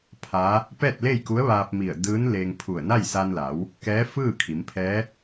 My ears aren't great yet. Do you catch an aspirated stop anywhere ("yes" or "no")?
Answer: yes